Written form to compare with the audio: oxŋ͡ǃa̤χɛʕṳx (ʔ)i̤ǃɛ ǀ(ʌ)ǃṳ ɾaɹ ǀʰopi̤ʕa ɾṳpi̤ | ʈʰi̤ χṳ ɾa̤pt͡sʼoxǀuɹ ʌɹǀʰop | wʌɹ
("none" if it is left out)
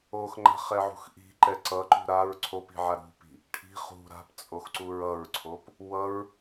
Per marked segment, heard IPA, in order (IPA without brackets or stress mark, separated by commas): ʔ, ʌ